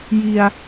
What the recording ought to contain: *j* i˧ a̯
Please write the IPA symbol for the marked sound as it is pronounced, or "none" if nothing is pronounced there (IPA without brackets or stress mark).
j